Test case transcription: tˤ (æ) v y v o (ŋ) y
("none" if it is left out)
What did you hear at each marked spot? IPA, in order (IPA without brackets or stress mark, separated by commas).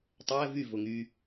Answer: æ, ŋ